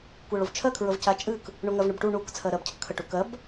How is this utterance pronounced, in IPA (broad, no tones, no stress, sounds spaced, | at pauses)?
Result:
kʷ ɜ ɭ o v t͡ʃʰ ɜ kʰ ɹ ə v c a t͡ʃʼ ɨ k | ɳ o ŋ ɜ v ɳ ə b ʈ u ɳ u k t͡sʰ ɜ ɾ ɜ b cʰ ə kʰ ə ʈ u k ɜ b